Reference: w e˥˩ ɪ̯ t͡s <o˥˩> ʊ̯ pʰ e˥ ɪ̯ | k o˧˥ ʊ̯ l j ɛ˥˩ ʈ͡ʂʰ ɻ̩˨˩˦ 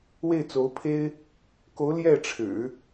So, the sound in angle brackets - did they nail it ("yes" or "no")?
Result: no